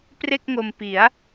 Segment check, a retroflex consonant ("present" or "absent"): absent